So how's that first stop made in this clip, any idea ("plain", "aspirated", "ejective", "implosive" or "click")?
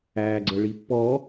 click